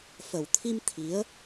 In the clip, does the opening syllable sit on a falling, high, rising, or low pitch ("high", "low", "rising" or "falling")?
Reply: low